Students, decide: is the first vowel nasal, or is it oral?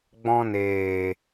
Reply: nasal